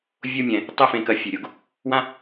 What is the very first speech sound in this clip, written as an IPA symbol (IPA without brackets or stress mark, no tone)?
vʲ